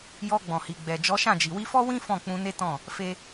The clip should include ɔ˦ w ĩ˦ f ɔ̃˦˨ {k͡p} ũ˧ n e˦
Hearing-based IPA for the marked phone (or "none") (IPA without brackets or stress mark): k͡p